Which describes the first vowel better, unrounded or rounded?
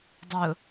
rounded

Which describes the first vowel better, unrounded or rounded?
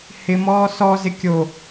unrounded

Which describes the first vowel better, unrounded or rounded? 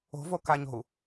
rounded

